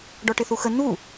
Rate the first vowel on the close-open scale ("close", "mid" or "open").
mid